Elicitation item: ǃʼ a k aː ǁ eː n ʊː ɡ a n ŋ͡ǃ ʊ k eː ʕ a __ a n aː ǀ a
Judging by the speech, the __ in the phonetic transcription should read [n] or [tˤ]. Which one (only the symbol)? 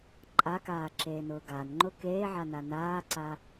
n